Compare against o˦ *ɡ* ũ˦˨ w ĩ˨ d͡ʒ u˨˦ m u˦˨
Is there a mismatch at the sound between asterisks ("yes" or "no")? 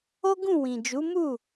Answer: no